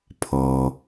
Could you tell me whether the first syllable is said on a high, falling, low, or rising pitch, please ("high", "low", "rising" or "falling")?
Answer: low